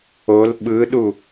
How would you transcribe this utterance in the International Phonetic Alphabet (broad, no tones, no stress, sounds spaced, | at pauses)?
o l ɓ ɯ ɗ u